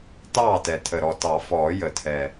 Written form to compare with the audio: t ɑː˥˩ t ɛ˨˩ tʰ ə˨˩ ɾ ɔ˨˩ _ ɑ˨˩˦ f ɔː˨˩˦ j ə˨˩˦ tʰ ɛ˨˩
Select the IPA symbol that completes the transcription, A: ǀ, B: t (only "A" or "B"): B